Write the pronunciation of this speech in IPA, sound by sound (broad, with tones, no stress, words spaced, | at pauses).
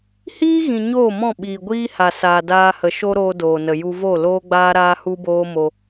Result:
hiː˦ɣĩ˨ ɲoː˦˨mɔ̃˦˨ ɓiː˨ɡʷiː˦ ha˨ saː˨daː˧hə˨ ʃo˦ ɾoː˦doː˨nə˨ ju˧vo˦˨loː˦ɡ͡baː˦ ɾaː˦hu˦boː˦mo˧